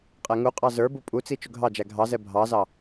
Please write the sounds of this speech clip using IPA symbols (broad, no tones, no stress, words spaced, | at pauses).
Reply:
qʼɛŋuqʼɑ zə˞bu pʼut͡si t͡ʃʊɡʱɑd͡ʒæ ɡʱɑzɛ bʱɑzɑ